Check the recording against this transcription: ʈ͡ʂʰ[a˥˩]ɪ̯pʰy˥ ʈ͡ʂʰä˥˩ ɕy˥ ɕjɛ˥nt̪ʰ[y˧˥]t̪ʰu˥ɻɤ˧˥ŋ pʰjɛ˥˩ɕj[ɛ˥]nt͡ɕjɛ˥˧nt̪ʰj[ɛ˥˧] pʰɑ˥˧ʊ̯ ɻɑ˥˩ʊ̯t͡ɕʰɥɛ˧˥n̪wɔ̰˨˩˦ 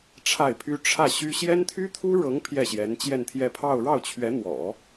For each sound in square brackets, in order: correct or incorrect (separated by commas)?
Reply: correct, incorrect, incorrect, correct